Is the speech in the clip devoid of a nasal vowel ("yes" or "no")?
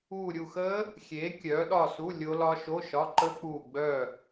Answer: yes